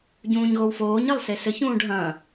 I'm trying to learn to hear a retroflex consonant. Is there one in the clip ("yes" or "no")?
yes